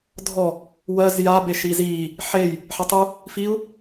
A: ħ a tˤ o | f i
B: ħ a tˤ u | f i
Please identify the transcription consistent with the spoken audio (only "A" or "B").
B